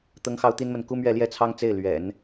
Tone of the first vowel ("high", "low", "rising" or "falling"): high